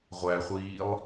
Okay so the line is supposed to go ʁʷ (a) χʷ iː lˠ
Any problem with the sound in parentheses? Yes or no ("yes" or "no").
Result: yes